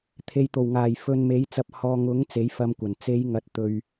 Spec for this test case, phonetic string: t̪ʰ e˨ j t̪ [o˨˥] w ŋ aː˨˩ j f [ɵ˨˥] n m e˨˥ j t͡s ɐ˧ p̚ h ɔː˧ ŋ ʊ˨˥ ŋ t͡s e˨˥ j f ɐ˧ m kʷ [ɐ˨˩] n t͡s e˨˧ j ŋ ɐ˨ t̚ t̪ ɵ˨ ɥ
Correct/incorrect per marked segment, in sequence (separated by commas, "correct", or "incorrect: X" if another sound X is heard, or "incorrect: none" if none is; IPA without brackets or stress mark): incorrect: o˨˩, incorrect: ɵ˨, correct